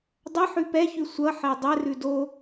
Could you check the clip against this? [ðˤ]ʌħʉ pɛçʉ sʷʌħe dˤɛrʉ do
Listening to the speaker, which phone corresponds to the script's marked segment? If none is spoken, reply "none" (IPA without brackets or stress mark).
dˤ